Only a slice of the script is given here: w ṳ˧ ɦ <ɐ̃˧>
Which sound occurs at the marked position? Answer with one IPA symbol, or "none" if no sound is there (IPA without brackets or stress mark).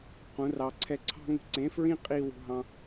ɑ̃˧